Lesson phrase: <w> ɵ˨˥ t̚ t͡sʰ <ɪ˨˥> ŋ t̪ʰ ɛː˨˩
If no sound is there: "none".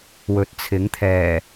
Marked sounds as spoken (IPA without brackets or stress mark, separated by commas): w, ɪ˨˥